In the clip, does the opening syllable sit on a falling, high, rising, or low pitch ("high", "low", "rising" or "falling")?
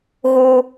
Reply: high